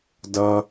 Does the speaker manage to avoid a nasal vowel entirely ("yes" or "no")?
yes